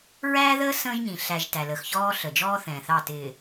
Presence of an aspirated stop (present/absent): absent